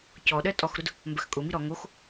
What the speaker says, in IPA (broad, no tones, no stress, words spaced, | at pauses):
cɔɗɜ tʼɔxɾʊd | mbɜxkʼʊmi ɾɔ ŋox